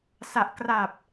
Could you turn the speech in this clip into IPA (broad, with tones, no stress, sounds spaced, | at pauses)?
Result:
s a˨˩ ʔ k r a˨˩ p̚